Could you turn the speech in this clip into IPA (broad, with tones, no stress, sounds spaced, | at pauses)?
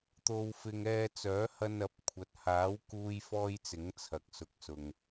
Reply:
t̪ o˧ w f ɪ˧ ŋ ɛː˧ t͡s œː˨˥ h ɐ˧ n ɐ˨˥ p̚ kʷʰ ɐ˨ t̚ h aː˨˥ w k uː˧ j f ɔː˥ j t͡s ɪ˨˥ ŋ t͡sʰ ɐ˨ k̚ s ʊ˨ k̚ s ʊ˨ ŋ